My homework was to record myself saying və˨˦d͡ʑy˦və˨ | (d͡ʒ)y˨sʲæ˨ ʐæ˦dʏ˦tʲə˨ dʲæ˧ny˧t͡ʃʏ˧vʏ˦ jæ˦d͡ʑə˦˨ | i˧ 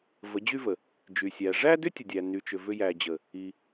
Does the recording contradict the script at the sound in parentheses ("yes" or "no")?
no